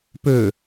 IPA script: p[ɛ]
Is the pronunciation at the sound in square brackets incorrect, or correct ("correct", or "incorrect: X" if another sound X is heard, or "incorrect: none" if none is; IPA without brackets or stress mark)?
incorrect: ø